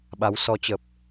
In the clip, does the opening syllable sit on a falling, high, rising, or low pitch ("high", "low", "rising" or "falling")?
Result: rising